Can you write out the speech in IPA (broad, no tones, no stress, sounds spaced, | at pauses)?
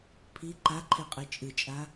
pʰ i ǃ a ǃʰ e qʼ ɨ t͡ʃʼ ɨ t͡ʃʼ a